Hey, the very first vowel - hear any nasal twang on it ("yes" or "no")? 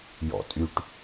no